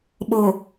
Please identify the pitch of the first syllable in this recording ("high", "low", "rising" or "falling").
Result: low